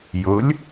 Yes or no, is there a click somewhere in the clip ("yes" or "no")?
no